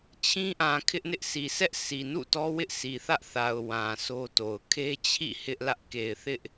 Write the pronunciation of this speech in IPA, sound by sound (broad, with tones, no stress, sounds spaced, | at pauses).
t͡ɕʰ ĩ˦ ʔ ã˨ kʰ ɪ˦ ʔ n ɪ˦ ʔ sʰ i˨ s ɛ˦ ʔ sʰ i˨ n ṵ˦˨ t ɔ˦ w ɪ˦ ʔ s i˨ θ ä˦ ʔ θ a˨ ʊ̯ w ã˨ s o˦ t o˨ ʊ̯ kʰ e˦ t͡ɕʰ ḭ˦˨ h ɪ˦ ʔ l ä˦ ʔ k e˨ ɪ̯ θ ɪ˦ ʔ